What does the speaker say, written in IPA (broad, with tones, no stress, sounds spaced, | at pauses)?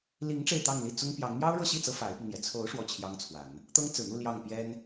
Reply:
l i˧˥ ŋ ʈ͡ʂ e˥˧ ɪ̯ t̪ ɑ˥˧ ŋ l i˥˩ t͡s ʊ˥ ŋ p j ɑ˧˥ ŋ m j ɑ˥ ʊ̯ ɻ ɤ˥˧ ɕ i˥˩ t͡s ɤ˧˥ f a˧˥ ɪ̯ p i˧ ŋ n̪ j ɛ˨˩ t͡sʰ o˧˥ ʊ̯ ʂ w ɔ˥˩ t͡ɕʰ j ɑ˥ ŋ t͡sʰ w a˨˩˦ n | t̪ ɤ˥ ŋ t͡s ɹ̩˨˩ n̪ u˥˧ l j ɑ˥˩ ŋ p j ɛ˥ n